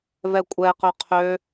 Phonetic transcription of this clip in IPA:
v ɛ kʷʼ ɛ q ø qʰ ø

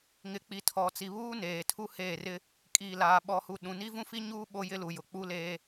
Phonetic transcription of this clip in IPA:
ŋ ɪ˨˦ k͡p i˨ tʰ ɔ˨ t͡s i˨ β uː˦ n eː˨ tʰ u˦ h eː˦˨ r ɪ˦ | kʼ iː˨ l aː˨ ɓ ɔ˨ h u˨ ɗ ũ˨ n i˦ v ũ˦ f i˦ ɲ uː˦ ɓ o˦ j ɪ˦ l u˨ j ʊ˨ k͡p u˦ l eː˦

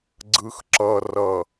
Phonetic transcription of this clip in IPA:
ɡ͡ǀ ɯ˨ x ǁ ʌ˨ r ʌ˨

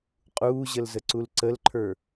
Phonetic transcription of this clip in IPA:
qʼ uː ʑ ə l z ə ǀ u l ǀ ə l ǃʰ ə˞

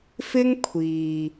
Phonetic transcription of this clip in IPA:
f ɪ˥ ŋ kʷʰ iː˨

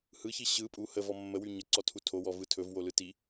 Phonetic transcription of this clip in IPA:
h ɯ ç i ɕ ɯ pʼ u h ə v ɔ mː ə w y ɲ ə ǀ ɔ tʰ u tʰ o w ɔ v ɯ tʰ ɵ v w o l ɯ t i

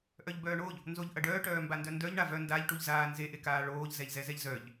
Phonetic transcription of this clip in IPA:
ʔ œ ʎ b œː ɳ o ʎ | n z o ʎ ʔ ɐ ɖ œː ʈ œː m b a n d œ n d œ ʎ ɳ a v œ n d a ʎ ʈ u ʎ z aː n z e ʔ e k aː ɭ oː ʎ z ɛ ʎ z ɛ z ɛ ʎ z œ ʎ

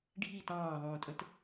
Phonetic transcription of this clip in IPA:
ɖʱ i t ɑ̃ː ðˤ ũː tʼ ə̃ t

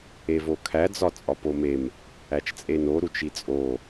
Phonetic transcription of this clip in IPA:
e v o kʰ æ d͡z ɒ t͡sʼ ɒ p o m e m | æ t͡ʃ t͡sʼ e n o ɾ u t͡ʃ i t͡sʼ o

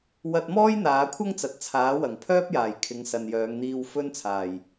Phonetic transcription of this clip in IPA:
w ɐ˧ t̚ m ɔː˥ j n̪ aː˨˧ kʷʰ ɐ˥ ŋ t͡s ɐ˨˥ t̚ t͡sʰ aː˨˥ w ɐ˨˩ ŋ pʰ œː˥ p̚ j aː˨˩ j kʰ ɪ˨˧ ŋ s ɐ˨ n j œː˨˧ ŋ n̪ iː˧ w f ɵ˥ n t͡sʰ aː˨˩ j

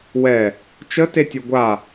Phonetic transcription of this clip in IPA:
w ɛ | t͡ʃ ə t e tʲ o ɡʷ a

